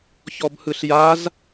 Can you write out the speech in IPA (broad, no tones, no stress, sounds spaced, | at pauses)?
ç ɔ b h ɯ ɬ j a z